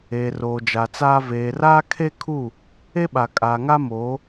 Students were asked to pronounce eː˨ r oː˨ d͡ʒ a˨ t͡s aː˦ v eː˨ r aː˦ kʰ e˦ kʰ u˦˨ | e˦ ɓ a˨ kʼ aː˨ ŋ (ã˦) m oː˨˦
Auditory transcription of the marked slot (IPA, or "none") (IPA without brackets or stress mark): a˦